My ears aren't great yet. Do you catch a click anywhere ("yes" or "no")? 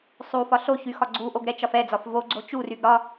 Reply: yes